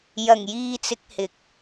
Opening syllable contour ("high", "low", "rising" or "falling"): low